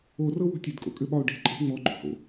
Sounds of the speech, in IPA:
o r ɤ w o̤ tʲ e d kʼ o̰ kʼ ɘ ɓ ɒ ʊ̯ ɖ e̤ ǃʼ e̤ ŋ͡m ɔ ɡ͡ǃ o̤ h o̰

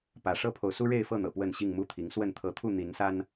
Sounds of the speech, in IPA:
p ä˨˦ ʂ ɤ˦ pʰ o˨ ʊ̯ s u˦ ɻ e˥˨ ɪ̯ f ɤ˥˨ n̪ ɤ̰˨˩ p w ə˥˨ n ɕ i˥˨ ŋ m u˥˨ t̪ʰ i˨˦ ŋ s w ə˥˨ n t̪ʰ ɤ˨˦ t̪ʰ u˥˨ n̪ i˨˦ n s a˦ n

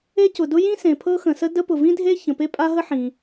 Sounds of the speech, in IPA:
e˥ c ʊ˩ d ʊ˥ j ĩ˥ s ẽ˩ pʰ ɤ˥ x ə̃˩ s ə˥ d ə˥ p ʊ˩ v ĩ˥ dʱ e˥ ç ə̃˩ p e˥ pʼ a˥ ɦ ə˥ ħ ĩ˩

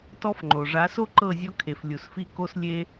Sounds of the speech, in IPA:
t ɔ˦ f ŋ͡ǃ o˨ ʐ a˨˦ s o˦ ǃ ɤ˦˨ zʲ ɔ˦ kʰ e˨ f lʲ u˨ s f i˦ k o˦ s lʲ e˦

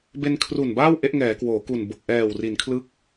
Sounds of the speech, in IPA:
b e˧ n kʰ r u˨˩ n b aː˥˩ w ʔ e˦˥ ʔ ŋ ɛː˩˦ k w oː˩˦ k u˨˩ n b o˨˩ k̚ ʔ ɛː˨˩ w r i˩˦ n kʰ l ɯ˦˥ k̚

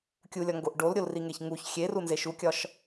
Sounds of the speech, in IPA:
kʲ u lʲ ɒ ŋ ɡ o ʔ ɖ o l ɾʲ o l r i ŋ e ç ŋ u ç xʲ e r u n z e ʃ u kʲ ɒ ʃ

